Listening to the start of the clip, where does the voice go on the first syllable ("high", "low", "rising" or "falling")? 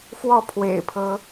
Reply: falling